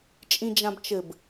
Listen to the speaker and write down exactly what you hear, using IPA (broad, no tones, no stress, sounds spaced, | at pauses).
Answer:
t͡ʃʼ ĩ d͡ʒ ã b t͡ʃ ɘ b